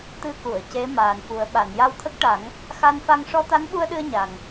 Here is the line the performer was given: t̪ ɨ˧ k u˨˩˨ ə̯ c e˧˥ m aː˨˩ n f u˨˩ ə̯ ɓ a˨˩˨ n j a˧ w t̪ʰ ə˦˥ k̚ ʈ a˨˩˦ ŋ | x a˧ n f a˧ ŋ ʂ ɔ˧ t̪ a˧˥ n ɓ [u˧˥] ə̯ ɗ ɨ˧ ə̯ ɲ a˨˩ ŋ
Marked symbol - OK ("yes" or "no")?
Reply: no